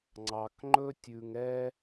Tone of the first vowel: low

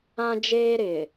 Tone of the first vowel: high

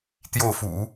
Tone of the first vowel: falling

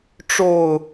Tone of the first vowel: low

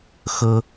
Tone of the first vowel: high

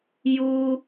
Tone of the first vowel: high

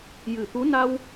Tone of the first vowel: low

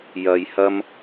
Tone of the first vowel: low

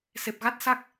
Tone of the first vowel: low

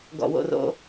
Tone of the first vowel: low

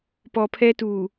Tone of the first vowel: low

